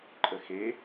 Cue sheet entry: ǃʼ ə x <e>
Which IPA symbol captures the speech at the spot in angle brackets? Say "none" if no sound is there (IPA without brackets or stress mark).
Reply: e